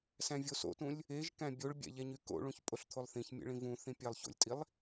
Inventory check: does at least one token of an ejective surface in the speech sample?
yes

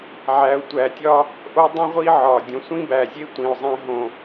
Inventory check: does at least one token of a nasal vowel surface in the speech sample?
yes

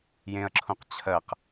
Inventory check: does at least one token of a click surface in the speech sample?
yes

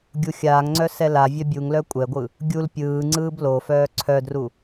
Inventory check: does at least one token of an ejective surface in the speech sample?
yes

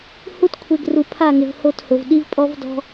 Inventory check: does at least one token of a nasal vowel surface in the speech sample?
no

